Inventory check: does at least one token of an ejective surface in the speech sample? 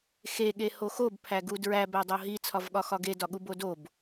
no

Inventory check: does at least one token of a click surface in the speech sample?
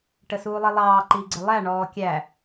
yes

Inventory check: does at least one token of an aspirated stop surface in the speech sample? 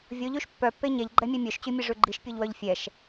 no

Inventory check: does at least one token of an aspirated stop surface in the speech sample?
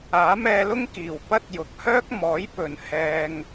no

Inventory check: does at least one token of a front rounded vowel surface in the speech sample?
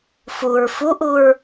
no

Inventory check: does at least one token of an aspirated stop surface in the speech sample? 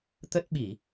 no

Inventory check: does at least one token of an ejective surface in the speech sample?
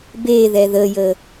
no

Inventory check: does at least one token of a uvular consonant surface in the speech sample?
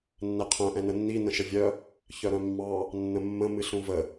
yes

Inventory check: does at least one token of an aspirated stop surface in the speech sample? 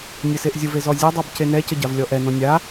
no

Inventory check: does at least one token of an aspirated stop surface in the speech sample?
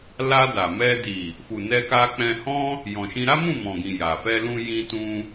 no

